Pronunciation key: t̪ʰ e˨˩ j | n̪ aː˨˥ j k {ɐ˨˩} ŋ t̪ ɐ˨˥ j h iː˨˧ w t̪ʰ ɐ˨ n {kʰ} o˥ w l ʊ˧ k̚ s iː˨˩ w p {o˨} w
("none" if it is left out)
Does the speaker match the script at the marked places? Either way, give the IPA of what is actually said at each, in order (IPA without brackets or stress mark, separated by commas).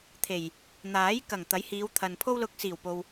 ɐ˨˩, pʰ, o˨